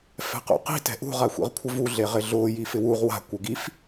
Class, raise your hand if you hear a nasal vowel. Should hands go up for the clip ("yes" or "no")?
no